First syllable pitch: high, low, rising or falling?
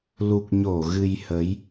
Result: low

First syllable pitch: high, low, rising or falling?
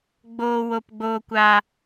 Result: low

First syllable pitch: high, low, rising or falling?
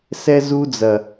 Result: high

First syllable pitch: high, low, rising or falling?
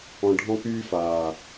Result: low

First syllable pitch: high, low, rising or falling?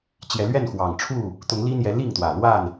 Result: rising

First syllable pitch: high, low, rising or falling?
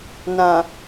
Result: low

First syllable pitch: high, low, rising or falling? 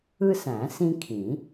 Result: high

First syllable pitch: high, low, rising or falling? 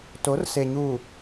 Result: rising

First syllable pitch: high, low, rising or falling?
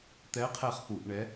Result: rising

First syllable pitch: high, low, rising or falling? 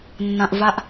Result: low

